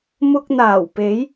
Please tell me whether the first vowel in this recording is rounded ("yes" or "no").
yes